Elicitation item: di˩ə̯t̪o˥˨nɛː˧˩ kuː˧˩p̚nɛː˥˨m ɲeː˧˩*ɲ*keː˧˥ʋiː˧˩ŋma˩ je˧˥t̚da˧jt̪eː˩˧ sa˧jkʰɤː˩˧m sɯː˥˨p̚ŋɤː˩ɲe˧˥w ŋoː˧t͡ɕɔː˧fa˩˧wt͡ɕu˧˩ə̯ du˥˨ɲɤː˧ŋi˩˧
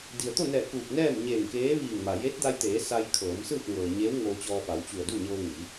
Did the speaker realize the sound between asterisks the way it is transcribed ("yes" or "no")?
no